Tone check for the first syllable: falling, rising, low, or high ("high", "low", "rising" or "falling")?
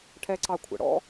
high